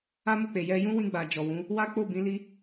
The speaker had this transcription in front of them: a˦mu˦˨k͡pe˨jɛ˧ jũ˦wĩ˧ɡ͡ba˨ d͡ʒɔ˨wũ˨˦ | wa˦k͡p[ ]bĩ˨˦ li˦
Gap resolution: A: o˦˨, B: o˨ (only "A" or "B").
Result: A